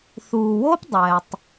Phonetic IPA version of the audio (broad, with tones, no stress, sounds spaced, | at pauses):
θ uː˨ w o˦ p dˤ ɛː˨ tˤ